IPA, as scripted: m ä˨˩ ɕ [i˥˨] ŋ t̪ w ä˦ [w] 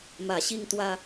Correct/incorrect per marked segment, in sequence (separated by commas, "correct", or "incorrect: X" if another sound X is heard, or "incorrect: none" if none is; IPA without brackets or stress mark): incorrect: i˦, incorrect: none